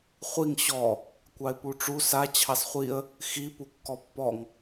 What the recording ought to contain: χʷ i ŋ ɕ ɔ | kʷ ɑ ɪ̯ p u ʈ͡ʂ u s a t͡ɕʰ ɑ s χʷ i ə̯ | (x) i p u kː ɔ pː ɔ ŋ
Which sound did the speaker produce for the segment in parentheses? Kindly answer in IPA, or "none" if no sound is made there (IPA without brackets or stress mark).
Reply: x